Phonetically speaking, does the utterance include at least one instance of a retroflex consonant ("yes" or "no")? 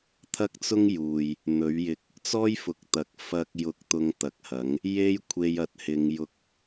no